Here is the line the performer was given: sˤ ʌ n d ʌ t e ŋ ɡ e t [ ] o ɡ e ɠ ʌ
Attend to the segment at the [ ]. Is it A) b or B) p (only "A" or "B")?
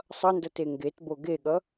A